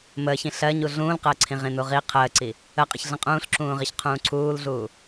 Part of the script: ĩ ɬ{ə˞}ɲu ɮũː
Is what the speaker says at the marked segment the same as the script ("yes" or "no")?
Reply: no